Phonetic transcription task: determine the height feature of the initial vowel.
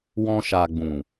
mid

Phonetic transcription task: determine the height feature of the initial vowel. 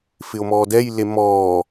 high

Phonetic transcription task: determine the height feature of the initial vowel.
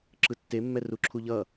high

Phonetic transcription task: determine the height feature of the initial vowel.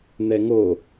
mid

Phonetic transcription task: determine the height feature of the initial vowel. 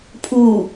high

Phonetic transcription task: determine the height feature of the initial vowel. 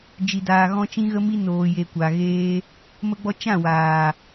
high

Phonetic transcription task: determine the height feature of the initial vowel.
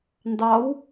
low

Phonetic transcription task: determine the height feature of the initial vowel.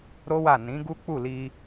mid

